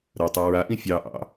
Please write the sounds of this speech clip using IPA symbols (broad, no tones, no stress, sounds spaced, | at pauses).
ɾ ɐ tˤ ɛ ɹ a ʔ ĩ fʲ ɑ ʔ ɑ̰